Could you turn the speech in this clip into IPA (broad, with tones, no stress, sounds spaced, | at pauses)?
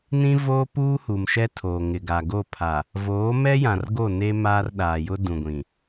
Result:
n ĩ˦ v oː˦ p uː˦ h u˨ m ʃ ɛ˦ tʰ oː˨ ŋ ɪ˨ ɡ a˨ ɡ o˦˨ pʰ a˨ | v oː˨˦ m ɛ˦ j ã˨ r ɡ o˦˨ n e˦ m aː˦ r ɗ aː˨ j ʊ˦ d ũ˨ ɡʷ ĩ˨